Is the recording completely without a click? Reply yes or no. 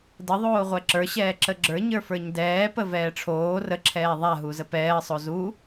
no